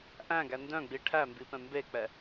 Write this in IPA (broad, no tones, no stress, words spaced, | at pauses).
ʔæ̃ɡæ ndœ̃ɡ͡bi ʈʰæmbipɛ̃ mbek͡pɛ